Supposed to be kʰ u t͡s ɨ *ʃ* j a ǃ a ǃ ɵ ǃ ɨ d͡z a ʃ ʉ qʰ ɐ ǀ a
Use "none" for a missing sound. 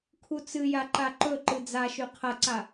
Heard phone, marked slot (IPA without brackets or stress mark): none